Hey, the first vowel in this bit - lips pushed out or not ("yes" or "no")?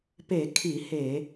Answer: no